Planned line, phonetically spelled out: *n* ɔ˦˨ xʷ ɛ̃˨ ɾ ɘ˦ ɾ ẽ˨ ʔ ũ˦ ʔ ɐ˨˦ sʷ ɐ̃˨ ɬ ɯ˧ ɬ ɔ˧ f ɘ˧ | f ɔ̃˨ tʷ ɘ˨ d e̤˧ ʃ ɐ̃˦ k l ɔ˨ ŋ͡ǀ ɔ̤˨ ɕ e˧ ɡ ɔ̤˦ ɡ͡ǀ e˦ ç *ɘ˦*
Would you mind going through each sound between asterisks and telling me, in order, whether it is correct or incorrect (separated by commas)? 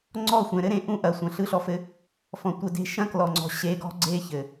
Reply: incorrect, incorrect